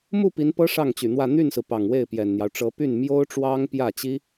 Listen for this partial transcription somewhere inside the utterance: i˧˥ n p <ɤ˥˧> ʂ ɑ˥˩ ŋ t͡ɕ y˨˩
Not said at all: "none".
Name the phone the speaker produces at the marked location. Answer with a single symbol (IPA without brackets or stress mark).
ɤ˥